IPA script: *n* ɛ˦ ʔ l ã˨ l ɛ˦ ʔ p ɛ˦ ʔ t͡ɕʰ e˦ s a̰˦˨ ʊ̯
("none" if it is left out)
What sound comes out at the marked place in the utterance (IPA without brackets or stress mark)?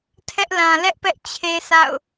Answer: tʰ